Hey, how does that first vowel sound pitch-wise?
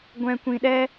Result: low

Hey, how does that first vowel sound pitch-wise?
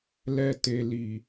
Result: low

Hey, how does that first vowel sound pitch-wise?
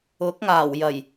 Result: rising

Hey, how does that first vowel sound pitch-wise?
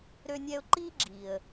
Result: high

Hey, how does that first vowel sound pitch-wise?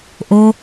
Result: high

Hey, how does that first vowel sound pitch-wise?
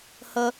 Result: high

